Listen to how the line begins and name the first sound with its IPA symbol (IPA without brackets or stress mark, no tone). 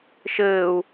ʃ